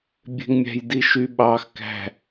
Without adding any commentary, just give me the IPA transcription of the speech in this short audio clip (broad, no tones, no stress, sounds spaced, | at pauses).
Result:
bʲ e̤ ŋ mʲ æ̤ j d i ʃ y ɓ ɑ x k æ̤